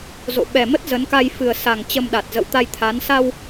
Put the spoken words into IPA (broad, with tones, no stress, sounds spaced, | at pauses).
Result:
z o̰˧˨ ɓ ɛ˨˩ m ə˦˥ t̚ z ə˨˦ n k a˧ j f ɨ˨˩ ə̯ s a˨˩ ŋ t͡ɕ ə˧ m ɗ a˨˩ t̚ z ə̰˧˨ w t̪ a˧ j t̪ʰ a˨˦ n s a˧ w